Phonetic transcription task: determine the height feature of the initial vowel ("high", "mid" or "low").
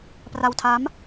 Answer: low